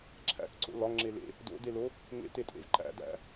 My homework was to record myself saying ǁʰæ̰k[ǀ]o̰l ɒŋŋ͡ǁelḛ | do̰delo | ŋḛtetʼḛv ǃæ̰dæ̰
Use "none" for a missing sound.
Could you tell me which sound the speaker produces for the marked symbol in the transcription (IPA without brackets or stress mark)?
ǀ